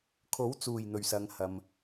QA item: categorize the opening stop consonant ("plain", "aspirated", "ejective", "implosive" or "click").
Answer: aspirated